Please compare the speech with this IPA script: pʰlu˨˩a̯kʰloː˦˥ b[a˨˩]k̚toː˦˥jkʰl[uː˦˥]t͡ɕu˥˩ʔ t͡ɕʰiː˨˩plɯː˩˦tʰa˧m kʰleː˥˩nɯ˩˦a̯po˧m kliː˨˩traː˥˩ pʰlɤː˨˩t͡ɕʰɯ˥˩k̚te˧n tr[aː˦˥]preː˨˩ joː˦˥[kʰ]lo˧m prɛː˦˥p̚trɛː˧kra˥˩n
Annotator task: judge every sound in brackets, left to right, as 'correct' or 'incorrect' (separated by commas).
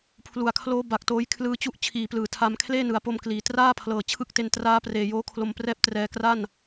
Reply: correct, incorrect, correct, correct